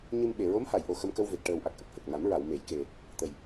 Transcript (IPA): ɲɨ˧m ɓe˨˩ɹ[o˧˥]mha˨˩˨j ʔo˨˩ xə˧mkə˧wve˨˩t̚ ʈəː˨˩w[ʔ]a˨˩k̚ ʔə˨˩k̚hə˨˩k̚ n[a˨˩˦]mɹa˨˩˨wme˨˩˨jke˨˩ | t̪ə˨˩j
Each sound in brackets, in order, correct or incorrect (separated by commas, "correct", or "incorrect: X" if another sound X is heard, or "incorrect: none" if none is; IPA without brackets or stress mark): correct, correct, correct